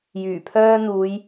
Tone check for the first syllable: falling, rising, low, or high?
low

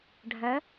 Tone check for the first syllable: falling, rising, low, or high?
rising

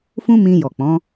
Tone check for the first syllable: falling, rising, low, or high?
high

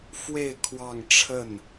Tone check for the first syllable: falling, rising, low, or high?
falling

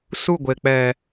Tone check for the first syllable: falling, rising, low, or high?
falling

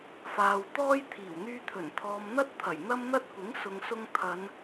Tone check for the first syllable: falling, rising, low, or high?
low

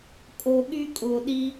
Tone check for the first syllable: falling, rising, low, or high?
low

